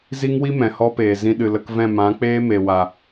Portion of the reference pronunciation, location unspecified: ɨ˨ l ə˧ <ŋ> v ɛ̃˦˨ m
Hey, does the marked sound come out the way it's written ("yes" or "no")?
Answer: no